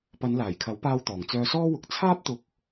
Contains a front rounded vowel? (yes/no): yes